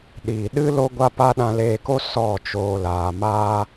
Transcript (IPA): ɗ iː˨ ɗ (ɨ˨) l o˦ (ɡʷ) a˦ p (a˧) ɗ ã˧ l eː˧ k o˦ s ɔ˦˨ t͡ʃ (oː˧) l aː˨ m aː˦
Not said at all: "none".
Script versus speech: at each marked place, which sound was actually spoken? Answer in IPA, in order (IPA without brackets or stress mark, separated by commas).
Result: ɨ˦, ɡʷ, a˦, oː˧